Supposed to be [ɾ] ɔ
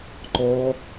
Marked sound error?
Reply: yes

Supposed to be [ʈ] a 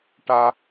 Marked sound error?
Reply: no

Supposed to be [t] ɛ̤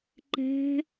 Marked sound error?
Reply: yes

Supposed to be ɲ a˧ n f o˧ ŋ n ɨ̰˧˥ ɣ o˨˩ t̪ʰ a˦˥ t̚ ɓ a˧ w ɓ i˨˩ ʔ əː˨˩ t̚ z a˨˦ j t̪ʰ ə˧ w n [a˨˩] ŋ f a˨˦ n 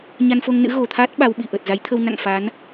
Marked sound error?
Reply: yes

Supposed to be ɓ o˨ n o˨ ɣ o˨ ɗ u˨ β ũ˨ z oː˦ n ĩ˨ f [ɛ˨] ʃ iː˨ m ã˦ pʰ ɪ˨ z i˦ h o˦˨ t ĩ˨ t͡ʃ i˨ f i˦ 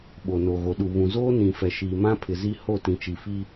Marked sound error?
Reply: no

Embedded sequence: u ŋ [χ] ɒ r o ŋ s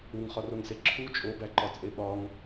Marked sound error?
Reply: no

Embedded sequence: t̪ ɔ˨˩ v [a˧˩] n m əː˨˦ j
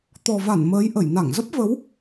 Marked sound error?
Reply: no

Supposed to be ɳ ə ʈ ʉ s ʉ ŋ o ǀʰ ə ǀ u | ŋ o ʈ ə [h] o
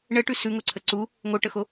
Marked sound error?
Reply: yes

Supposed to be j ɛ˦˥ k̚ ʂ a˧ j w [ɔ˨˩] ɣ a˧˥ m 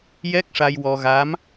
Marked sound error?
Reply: yes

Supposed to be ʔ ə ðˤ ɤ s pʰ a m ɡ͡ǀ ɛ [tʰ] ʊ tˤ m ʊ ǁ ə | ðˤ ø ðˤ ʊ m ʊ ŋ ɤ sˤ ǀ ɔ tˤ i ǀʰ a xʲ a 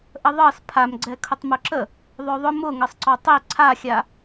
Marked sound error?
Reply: yes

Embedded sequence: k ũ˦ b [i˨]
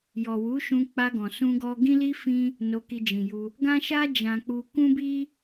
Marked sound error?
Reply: yes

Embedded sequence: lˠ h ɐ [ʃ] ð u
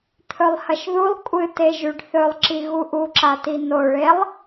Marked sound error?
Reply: no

